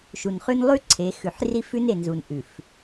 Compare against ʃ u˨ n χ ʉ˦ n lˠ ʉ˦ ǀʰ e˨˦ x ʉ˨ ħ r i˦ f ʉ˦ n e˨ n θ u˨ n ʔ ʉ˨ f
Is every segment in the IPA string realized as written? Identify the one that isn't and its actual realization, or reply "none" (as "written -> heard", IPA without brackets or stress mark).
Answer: θ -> z